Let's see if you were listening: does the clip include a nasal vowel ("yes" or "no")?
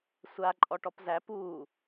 no